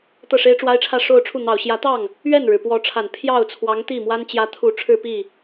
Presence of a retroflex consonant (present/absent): present